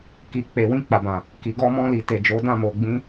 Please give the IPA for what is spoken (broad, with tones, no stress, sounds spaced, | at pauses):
k i˨ k͡p e˨ w ĩ˧ k͡p a˨ b ã˨ | k i˨ ɡ ɔ˧ m ɔ̃˧ l i˨ t e˨ d͡ʒ o˨˦ d ã˦˨ m o˨ ɡ͡b ĩ˧